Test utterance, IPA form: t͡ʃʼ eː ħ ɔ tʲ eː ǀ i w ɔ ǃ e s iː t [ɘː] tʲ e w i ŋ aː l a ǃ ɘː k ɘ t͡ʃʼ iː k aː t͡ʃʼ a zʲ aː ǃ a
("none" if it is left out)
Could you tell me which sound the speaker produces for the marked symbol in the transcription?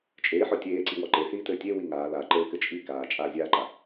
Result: ɘː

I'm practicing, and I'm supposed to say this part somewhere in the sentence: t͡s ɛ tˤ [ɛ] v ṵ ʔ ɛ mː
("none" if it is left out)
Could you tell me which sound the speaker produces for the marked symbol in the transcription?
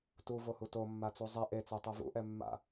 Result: ɛ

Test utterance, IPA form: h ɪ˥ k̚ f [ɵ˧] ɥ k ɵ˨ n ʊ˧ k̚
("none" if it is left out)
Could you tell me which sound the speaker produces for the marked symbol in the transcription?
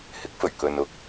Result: ɵ˨˩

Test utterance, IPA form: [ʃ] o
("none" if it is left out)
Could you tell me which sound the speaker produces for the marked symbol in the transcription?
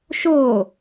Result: ʃ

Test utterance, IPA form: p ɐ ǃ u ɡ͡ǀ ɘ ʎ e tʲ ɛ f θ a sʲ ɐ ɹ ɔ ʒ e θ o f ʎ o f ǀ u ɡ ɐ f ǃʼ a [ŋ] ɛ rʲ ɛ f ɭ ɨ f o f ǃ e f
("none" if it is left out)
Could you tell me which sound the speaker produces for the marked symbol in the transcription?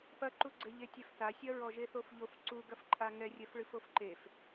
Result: ŋ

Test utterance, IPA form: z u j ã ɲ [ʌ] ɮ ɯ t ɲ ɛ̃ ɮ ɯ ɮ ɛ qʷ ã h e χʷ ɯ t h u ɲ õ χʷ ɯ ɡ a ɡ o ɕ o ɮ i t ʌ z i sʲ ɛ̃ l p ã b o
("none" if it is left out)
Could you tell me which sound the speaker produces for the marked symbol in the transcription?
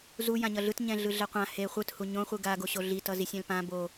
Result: ʌ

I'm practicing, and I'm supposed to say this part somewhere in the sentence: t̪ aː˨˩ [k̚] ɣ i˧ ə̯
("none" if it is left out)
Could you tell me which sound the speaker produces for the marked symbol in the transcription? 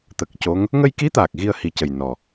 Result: k̚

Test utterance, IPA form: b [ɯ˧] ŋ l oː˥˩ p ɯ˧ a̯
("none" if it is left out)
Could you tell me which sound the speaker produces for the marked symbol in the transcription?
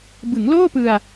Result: ɯ˩˦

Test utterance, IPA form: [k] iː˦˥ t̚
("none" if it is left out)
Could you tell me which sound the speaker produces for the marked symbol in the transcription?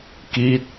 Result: k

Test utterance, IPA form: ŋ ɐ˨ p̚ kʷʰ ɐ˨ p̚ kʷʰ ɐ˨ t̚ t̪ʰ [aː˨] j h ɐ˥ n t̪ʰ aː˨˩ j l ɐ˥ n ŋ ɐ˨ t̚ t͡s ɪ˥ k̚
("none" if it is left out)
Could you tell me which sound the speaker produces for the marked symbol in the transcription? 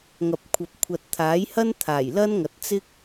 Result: aː˨˥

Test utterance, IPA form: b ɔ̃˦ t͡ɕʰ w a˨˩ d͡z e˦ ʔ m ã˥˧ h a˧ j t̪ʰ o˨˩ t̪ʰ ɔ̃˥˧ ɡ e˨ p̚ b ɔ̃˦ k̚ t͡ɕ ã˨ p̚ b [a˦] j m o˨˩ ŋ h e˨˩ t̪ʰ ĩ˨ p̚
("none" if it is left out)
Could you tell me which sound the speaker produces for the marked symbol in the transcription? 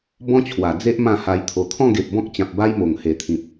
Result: a˦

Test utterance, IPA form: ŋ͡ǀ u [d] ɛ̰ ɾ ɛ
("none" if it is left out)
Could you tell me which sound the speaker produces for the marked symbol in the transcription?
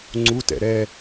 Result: t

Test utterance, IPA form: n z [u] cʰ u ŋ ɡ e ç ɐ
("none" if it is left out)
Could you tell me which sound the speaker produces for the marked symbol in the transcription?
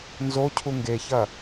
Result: o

